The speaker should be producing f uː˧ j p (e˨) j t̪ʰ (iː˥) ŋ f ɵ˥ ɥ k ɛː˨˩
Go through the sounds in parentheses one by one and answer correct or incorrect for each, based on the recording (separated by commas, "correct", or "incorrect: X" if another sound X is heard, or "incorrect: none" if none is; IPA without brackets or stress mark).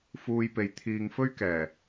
correct, incorrect: iː˨